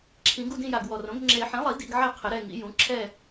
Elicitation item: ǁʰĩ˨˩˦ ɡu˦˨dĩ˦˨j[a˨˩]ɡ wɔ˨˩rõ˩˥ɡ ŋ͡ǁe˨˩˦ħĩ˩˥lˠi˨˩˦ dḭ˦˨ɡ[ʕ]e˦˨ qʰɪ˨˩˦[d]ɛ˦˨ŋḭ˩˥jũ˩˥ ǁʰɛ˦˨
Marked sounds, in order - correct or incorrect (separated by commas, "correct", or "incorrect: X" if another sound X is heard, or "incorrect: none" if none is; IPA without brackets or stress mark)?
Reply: correct, correct, incorrect: ɾ